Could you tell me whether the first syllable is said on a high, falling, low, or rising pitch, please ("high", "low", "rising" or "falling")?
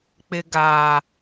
low